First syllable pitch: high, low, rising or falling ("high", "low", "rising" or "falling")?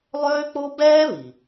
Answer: high